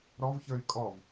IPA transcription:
ɾ ɔ v ç ə˞ y̯ kʼ ɔ v

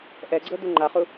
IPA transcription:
ʔ ɛ ɡ͡ǀ ɤ d u ŋ͡ǃ a χ u

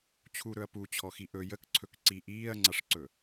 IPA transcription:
t͡ɕʰ u ɾ ɵ ɐ̯ p u t͡ɕʰ ɔ x i ʔ ɵ j ə k ǀʰ ɵ k ǀ i ʔ iː ɐ̯ ŋ͡ǀ a ʂ ǀ ɵ

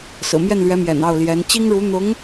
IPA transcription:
s ɹ̩˨˩ m j ɛ˥˩ n l ɥ ɛ˧˥ m j ɛ̰˨˩ n ɑ˥˩ ʊ̯ l j ɛ˧˥ n t͡ɕ i˥ ŋ ɻ u˧˥ n̪ ʊ˧˥ ŋ

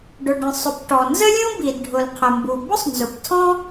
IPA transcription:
ɖ ʊ˩ ɖ ə̃˩ sˤ ʊ˩ p ʈ ɔ˩ n z ə˥ lʲ ũ˥ b i˩ d ɖʱ ʊ˩ l qʰ ə˩ m b u˩ b ʊ˥ sˤ n z ʊ˩ p tʰ ɔ̃˥

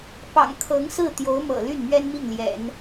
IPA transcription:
p ɑ̰˨˩ ŋ kʰ ɤ˧˥ ŋ s ɹ̩˥˩ t̪ j o˧˥ ʊ̯ m ɤ̰˨˩ l y˥˩ n m ɥ ɛ˥ n m i˥˩ ŋ l j ɛ̰˨˩˦ n

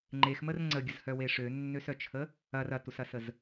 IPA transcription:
ŋ͡ǃ e x m ə r ŋ͡ǀ ə ɡʲ ə z h œ w e ʂ ø nː ø s œ t͡ʃʰ ə | ɐ r ɐ t u s ɐ s ə z

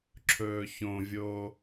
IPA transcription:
ǁʰ ɵː ç õ vʲ oː

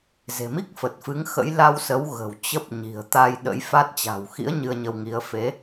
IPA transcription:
z e̤˨˩ m i˦˥ k̚ f ə˨˩ t̚ f ɨ˨˦ ŋ x ə̰˧˥ j l a˧ w s ə˨˦ w ɣ ə̤˨˩ w t͡ɕ ə˦˥ p̚ ɲ i̤˨˩ ə̯ t̪ a˧ j ɗ ə̰˧˥ j f a˦˥ t̚ t͡ɕ a̤˨˩ w x ḭ˧˥ ə̯ ɲ ɨ˧ ə̯ ɲ ə˧ w ŋ i˨˦ ə̯ f e˨˦

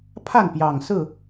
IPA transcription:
pʰ a˥˨ n p j ɑ˨˩ ŋ s ɹ̩˥˨

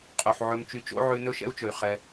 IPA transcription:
qʼ u˨ ħ ʕ ɵ˧ m t͡ʃ y˧ t͡ʃ o̰˦ ʕ ʉ˧ n ɵ˦ ʃ ɛ̰˦ u̯ t͡ʃ ɵ˨ y̯ χ ɛ˧

